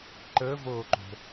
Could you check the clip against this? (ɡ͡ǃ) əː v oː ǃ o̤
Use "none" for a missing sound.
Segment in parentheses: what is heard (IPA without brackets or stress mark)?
ǃ